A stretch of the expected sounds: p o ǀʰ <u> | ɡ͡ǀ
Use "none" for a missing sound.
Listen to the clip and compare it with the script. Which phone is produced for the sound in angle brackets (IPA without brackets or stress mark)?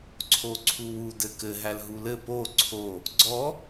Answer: o